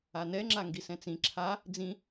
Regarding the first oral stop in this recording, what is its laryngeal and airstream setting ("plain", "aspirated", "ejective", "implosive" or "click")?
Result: click